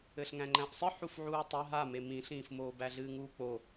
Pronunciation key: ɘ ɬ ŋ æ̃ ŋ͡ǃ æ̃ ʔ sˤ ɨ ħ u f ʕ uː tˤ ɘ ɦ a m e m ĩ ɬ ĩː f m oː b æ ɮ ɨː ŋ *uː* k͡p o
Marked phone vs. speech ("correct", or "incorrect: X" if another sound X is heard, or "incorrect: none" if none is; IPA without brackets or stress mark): correct